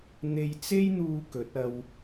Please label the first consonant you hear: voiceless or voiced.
voiced